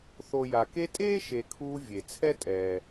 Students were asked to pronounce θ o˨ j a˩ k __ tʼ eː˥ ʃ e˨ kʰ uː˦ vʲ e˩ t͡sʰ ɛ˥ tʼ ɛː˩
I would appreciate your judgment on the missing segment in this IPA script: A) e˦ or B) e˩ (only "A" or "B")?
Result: A